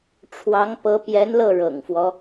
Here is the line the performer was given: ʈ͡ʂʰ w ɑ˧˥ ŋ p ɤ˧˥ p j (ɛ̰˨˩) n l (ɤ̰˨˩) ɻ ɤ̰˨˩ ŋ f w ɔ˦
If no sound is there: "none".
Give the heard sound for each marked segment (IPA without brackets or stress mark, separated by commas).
ɛ˧˥, ɤ˥˩